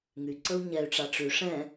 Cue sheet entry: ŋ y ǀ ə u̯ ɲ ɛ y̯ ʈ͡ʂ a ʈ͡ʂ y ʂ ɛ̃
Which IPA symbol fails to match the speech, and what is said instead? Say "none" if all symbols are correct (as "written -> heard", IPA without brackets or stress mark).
none